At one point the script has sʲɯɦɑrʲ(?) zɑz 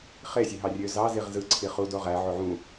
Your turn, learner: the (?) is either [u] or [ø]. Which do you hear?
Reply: ø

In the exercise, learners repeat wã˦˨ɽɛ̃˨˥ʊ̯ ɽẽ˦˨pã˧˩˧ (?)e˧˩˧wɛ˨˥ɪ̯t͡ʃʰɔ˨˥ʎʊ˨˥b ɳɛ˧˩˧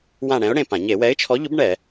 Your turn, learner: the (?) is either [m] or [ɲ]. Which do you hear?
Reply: ɲ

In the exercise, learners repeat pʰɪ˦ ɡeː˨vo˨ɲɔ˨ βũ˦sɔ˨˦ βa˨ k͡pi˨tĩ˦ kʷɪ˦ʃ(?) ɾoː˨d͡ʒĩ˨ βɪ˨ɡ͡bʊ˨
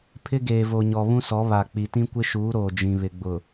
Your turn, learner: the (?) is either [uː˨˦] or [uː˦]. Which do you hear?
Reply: uː˨˦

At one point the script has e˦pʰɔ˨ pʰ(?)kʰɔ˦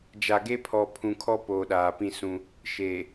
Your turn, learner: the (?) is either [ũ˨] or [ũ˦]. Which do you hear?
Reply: ũ˨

